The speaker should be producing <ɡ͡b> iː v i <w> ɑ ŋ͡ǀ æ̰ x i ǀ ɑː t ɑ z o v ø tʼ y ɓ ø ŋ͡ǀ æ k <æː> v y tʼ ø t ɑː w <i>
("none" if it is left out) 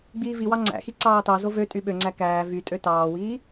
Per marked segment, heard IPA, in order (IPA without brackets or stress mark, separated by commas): ɡ͡b, w, æː, iː